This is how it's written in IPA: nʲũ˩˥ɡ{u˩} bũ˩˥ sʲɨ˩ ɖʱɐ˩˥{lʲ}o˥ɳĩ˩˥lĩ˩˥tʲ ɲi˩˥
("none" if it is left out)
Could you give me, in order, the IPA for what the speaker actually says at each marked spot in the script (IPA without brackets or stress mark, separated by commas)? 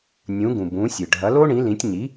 ũ˩, l